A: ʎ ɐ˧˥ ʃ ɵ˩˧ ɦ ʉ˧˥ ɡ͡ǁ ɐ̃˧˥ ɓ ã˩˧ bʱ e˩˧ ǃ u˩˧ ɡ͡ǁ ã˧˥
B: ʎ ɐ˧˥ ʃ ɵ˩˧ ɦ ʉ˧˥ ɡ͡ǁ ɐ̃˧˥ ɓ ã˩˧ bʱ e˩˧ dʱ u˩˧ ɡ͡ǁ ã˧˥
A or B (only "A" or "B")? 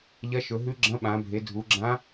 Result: B